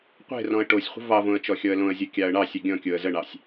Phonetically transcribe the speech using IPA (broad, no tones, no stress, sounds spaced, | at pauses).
qʷ e̤ r ɔ̃ ə̯ ʈ o sʲ χʷ ə̤ v ɑ v õ ə̯ t͡ʃ ɔ xʲ ɔ ə̯ l õ ə̯ zʲ o kʲ ɑ ə̯ ɳ ɑ sʲ ə ɡʲ ɔ̃ kʲ o ə̯ z ə ɳ ɑ sʲ